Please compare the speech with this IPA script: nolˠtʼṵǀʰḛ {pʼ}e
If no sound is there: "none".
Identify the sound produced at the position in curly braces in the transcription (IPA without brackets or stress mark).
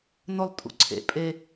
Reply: pʼ